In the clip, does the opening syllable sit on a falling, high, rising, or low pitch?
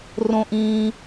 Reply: high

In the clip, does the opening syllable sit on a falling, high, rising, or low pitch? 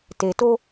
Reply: low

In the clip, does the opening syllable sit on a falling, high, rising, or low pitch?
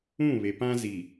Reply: falling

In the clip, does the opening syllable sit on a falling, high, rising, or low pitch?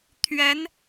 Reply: rising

